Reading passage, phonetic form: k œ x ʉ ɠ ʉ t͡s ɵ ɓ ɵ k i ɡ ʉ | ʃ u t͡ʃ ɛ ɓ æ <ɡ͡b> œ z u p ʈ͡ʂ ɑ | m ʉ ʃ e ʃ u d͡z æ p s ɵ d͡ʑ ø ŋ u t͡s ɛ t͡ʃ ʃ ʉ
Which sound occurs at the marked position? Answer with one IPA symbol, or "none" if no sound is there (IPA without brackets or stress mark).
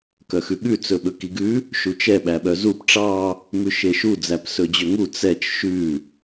ɓ